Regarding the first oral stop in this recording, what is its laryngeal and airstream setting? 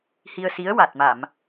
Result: plain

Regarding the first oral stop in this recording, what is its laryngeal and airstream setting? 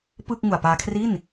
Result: plain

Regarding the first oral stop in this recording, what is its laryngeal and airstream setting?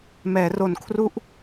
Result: aspirated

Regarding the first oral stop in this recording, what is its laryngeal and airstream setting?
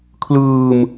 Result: aspirated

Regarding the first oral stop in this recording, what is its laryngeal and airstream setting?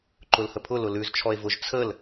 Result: click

